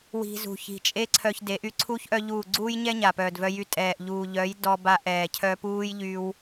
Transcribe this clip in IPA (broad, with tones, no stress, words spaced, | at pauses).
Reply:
wi̤˧zṳ˨ çi̤˨t͡ʃʼe˦ǀʰœ˧çde˨˦ʔ y˦ǀʰu˦ç ʔœ˦ʎuː˦˨ ɡ͡ǀuː˦jɲɛ˦ ɲa˨pœː˨dvœ˦ jy˧tʼɛː˨ʔ ʎuː˨ ʎœ˨˦jdɔ˧ba˧ ʔɛː˨ cʰœ˧puː˦j ʎy˦w